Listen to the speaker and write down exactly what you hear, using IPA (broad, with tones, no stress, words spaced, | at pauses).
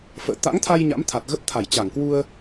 fə̰ː˧˨ t̪a̰˧˥ŋt̪ʰa˧j ɲa̰˧˥mt̪ʰa˨˩t̚ ɣə˦˥p̚t̪ʰa˧˩jt͡ɕa˧˩ŋ kwu˧ə̯